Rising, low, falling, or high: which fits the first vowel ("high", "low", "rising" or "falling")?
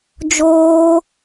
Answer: high